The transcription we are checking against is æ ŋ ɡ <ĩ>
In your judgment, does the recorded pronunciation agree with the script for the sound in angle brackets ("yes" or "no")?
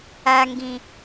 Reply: yes